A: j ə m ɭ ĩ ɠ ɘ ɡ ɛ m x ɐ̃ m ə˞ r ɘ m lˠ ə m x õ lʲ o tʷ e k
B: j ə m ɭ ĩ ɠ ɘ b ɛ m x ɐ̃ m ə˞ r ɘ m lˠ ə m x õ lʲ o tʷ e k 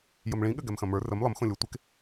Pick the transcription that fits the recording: A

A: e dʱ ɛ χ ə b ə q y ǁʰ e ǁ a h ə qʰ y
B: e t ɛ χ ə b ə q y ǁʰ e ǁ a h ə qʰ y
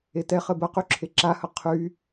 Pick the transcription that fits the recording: B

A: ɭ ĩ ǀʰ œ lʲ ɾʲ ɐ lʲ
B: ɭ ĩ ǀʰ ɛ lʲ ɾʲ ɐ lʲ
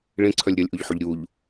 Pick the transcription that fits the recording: A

